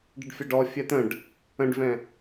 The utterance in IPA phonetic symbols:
ɖəɖfʲaɖɔ fʲɛt̪ə̃ɖ | ə̃ɖvɛ̃

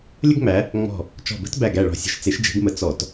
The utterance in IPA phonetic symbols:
lʲə˥ɡŋ͡mæ˨˦ | ŋ͡mɔ̤˧˩ | t͡ʃɔ̤˧˩bə̤˥t bæ˧˩ɡæ˧˩ ɭɔ̤˧˩sʲə̤˧˩ʃ t͡se˨˦ʃd͡ʒe̤˨˦ɡmə˨˦ t͡sɔ˧˩˧t

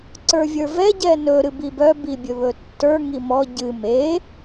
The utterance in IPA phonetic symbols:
ǀə˞vʲə˞vɛ ɟɛnɵ ɾɨbibœ bibʲɵβɵtːə˞ ŋimɔ ɟɨ me

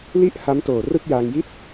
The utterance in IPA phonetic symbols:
li˥˩ʔ ha˦˥mtoː˨˩ rɯ˥˩k̚jaː˧ŋji˥˩t̚

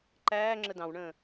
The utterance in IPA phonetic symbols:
ǃæːŋ͡ǁə dɑ̃wɳə̃ː

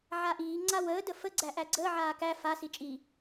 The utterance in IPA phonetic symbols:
ʕaʔiː ŋ͡ǀawəː dəfə ɡ͡ǀæʔæɡ͡ǀəː ʕaːkæ fa sit͡ʃʼi

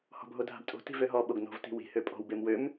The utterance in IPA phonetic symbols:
hɔ̤bʱodʱa̤btʼo̤ ti̤vøɦɔ ɓoɡno̤v ti̤wi̤ høpʼɔ̤w bemwøm

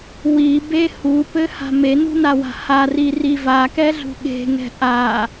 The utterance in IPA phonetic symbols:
wibe hupɘha̤ menṳnawa̤ hariri vakɛɮṳ ɠe̤ŋɛ̤ ʔa

